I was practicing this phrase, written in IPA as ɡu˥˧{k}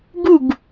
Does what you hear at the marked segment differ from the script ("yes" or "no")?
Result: yes